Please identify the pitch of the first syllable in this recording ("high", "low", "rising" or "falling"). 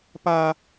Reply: high